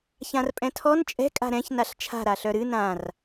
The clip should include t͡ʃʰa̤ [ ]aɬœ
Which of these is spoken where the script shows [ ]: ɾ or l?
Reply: ɾ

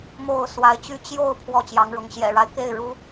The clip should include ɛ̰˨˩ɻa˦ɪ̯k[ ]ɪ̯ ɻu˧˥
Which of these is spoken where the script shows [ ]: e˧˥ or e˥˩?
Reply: e˥˩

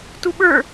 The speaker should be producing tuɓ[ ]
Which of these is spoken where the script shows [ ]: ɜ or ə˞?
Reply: ə˞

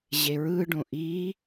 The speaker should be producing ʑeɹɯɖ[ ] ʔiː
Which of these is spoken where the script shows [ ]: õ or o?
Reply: õ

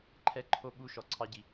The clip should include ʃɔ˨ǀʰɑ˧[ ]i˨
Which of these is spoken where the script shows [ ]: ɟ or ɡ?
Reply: ɟ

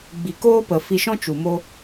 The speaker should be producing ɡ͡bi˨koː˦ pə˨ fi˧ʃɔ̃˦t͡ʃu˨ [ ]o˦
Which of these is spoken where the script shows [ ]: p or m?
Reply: m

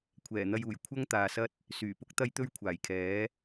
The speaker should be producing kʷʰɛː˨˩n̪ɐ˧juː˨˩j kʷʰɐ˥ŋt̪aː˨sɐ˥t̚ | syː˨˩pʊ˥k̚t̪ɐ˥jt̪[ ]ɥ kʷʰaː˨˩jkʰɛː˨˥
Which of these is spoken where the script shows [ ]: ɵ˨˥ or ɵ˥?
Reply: ɵ˥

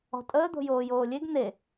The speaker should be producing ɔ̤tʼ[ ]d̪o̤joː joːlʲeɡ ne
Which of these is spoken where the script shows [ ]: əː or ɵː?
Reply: əː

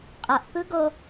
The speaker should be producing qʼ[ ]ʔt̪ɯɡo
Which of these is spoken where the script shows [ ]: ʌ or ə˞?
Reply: ʌ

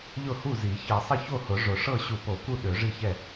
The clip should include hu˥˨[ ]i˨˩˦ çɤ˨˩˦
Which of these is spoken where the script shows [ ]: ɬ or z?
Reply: z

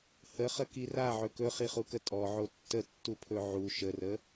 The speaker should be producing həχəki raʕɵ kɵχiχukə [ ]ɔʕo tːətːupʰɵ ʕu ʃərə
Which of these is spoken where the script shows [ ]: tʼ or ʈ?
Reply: tʼ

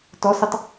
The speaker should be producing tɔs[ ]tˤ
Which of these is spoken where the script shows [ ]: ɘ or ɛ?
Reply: ɘ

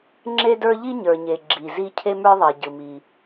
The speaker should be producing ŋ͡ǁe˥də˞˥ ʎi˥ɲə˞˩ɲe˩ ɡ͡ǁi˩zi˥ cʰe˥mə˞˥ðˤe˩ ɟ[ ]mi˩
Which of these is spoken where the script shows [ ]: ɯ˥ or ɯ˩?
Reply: ɯ˩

